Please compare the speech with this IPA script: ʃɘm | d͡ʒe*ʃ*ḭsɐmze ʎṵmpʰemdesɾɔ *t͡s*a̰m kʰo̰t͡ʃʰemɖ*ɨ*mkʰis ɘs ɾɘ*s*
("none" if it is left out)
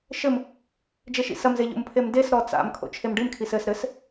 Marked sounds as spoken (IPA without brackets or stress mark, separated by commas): ʃ, t͡s, ɨ, s